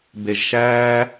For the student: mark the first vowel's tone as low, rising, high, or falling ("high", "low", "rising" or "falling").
low